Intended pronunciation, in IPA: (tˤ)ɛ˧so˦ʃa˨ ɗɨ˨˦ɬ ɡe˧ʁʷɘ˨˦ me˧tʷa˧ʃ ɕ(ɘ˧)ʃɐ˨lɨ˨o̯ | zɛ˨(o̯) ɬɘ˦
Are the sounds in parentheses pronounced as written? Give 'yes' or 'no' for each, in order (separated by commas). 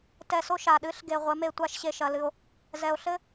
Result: no, no, yes